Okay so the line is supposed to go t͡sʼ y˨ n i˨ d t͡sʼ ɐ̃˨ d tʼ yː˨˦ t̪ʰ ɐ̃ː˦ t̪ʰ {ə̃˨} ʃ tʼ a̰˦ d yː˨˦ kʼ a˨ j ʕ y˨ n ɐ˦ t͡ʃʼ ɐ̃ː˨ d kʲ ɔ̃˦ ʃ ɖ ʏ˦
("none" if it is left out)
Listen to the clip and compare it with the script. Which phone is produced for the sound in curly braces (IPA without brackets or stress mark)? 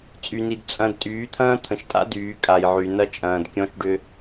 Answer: ə̃˨